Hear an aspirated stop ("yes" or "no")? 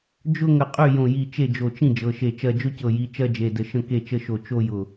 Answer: no